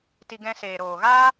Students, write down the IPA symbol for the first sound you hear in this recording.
t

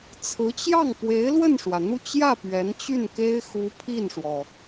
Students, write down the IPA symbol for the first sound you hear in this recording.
t͡sʰ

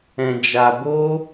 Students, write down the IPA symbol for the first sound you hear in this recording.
ɛ̃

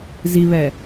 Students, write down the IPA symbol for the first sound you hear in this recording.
z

